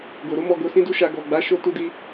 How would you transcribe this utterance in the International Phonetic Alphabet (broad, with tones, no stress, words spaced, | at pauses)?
ɡo˨ɾo˨˦mɔ˧ ɡo˧sĩ˦du˦ʃa˧ ɡɔ˨ɡ͡ba˨˦ ʃo˧tu˧di˧